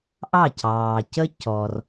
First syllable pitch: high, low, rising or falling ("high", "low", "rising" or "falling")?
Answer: falling